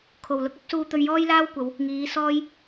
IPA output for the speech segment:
kʰ o˨˩ w l ʊ˧ k̚ ɐ˨˥ p̚ s uː˧ t̪ ɵ˧ ɥ j ɔː˥ j l aː˥ w kʷ ɐ˨˧ w | ŋ iː˨˧ s ɔː˥ j

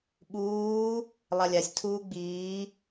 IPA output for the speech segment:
ɓ uː | lˠ a lʲ a sʲ tʰ uː ɡ͡b iː

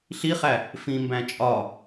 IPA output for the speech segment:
ɬ i χ æ | f ĩ m b æ̃ t͡ʃʼ ɒ

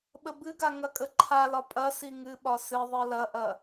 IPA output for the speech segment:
ɓ ə b ɨ ɡ a ŋ ɐ kʼ ə ǃʰ a l ɒ pʼ ɐ s i ŋ ɨ ɓ ɒ s ɨ ðˤ ɨ l ɐ ʔ ɐ

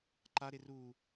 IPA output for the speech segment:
ǃ a ɾ e r u

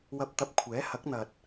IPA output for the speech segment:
w ɐ˧ p̚ t̪ ɐ˧ p̚ kʷʰ ɛː˨˥ h ɐ˨˥ k̚ n̪ ɐ˨ t̚

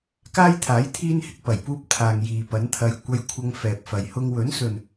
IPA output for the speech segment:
k aː˥ j t̪ʰ aː˨˥ j t̪ʰ iː˥ n h ɪ˨˥ k̚ p ɐ˨˩ j p uː˥ p̚ t̪ʰ aː˨ ŋ j iː˨ p ɐ˨˥ n t̪ʰ ɐ˧ j kʷ ɐ˧ j kʷʰ ɐ˧ ŋ f ɛː˨ p̚ f ɐ˨ j h ʊ˧ ŋ w ɵ˨˥ n s ɵ˨ n

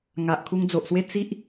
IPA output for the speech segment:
ŋ a˨ ʔ kʰ u˧ ŋ d͡z o˨ ʔ s w e˦ t͡s i˦ ʔ

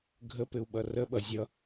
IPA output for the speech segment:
ɡʱ ə p ɪ u̯ ɓ ʌ r ə ɓ ʌ zʲ ʌ

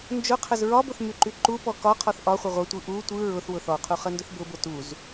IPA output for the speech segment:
n d͡ʒ ʊ qʰ ə z ɹ ɒ b ʊ θ m y ǃ y ǃ u p ɔ k ɒ qʰ ɔ θ ʔ ɒ χʷ ə ʁʷ ə tʷ ɯ ʔ u tʷ ɯ ɹ ʊ θ w ʊ θ ɔ qʰ u χ ə n d ʊ θ b ʊ b ʊ t u z

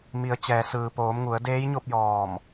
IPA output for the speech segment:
m i˩˧ ə̯ t͡ɕ ɛː˩ s ɯː˩ p oː˩˧ m ŋ u˩˧ ə̯ d eː˧˥ j ɲ o˥˨ p̚ j ɔː˧˩ m

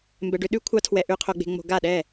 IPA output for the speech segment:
m b ɛ˨ ɖ ʏ˧˥˧ ɗ ʉ˦˥ kʷʰ ɑ˦˥ tʰ w ɛ˨ ʔ ʉ˨ qʰ o˨ ɡ͡b e̤˨ ŋ͡m o̤˨ ɡ a˥˩ ɗ ɛ˥˩

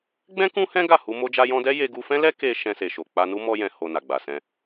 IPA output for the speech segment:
ɡ͡b ɛ̃˦ k ũ˦ h ɛ̃˦ ɡ a˦˨ h u˧ m o˧ d͡ʒ a˧ j ɔ̃˧ d ɛ˦ j e˧ ɡ u˧ f ɛ̃˦ l ɛ˦ k e˧ ʃ ɛ̃˧ s e˨ ʃ o˨ k͡p a˧ n u˦ m ɔ˧ j ɛ̃˨ h o˨ n a˨ ɡ͡b a˨ s ɛ̃˧

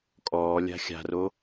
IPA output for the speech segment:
kʼ ɔː lʲ a̤ xʲ a̤ r o

